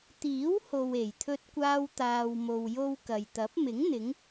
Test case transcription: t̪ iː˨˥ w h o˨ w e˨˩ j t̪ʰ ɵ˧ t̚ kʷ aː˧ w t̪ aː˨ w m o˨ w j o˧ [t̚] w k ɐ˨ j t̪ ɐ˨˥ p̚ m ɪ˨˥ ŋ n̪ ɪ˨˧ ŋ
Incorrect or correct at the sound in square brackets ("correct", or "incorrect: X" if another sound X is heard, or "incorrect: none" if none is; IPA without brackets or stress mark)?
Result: incorrect: none